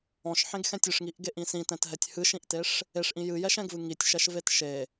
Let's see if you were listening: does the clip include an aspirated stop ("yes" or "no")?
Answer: no